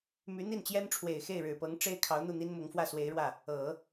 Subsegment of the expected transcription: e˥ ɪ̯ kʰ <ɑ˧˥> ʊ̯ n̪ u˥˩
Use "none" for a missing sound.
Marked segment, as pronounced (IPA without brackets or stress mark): ɑ˧˥